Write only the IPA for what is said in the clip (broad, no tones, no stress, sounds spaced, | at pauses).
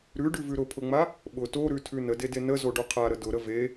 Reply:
ɾ ʉ ɖ ʉ v ʉ ɾ ʊ pʰ ʊ ŋ͡m a | ɓ ʊ t o ɾ ʉ tʰ ʉ n ə d e d e n ə z o ɖ o qʰ a ɾ ə d ʊ ɾ ə v e